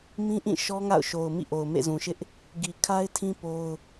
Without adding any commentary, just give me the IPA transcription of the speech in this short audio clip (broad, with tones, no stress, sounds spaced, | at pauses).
m ĩ˦ ʔ ĩ˦˨ ʃ ɔ˦ ŋ a̰˦˨ ʊ̯ ʃ o˨ ʊ̯ m ḭ˦˨ ʔ o˨ ʊ̯ m ḛ˦˨ z ũ˨ ʃ ɪ˦ ʔ | ɡ i˨ kʰ a˦ ɪ̯ tʰ ĩ˦ p o˦ ʊ̯